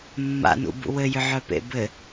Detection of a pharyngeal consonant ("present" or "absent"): present